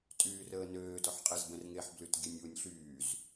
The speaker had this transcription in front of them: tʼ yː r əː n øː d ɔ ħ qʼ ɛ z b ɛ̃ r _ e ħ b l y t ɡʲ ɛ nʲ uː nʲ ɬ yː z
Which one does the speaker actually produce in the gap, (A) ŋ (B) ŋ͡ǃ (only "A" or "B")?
A